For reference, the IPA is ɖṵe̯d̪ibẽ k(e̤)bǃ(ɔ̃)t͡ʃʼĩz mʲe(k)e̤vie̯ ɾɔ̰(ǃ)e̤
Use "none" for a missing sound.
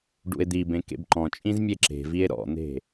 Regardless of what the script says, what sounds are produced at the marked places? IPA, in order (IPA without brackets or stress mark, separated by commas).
ḛ, ɔ̃, ǁ, n̪